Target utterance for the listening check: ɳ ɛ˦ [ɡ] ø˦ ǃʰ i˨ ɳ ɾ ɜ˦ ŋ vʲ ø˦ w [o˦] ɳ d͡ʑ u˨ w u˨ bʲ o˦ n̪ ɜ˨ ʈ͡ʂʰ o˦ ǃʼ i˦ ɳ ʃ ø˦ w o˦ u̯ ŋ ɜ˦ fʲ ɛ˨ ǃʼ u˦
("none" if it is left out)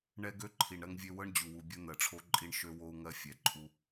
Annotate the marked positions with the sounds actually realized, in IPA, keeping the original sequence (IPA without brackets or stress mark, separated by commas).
ɡ, ɤ˦